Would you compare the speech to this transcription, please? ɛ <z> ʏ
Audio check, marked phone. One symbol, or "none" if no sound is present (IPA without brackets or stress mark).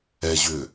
ʑ